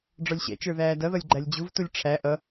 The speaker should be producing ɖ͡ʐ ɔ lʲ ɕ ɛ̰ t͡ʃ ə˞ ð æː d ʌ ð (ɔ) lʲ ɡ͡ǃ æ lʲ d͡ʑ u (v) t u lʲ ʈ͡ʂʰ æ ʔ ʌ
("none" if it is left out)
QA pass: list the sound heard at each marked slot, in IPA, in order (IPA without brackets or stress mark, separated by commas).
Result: ʌ, v